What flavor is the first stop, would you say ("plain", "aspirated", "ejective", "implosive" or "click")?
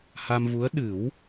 implosive